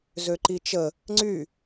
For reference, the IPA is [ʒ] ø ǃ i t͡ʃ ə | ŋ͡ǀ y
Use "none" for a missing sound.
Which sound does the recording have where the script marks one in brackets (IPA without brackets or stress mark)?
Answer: z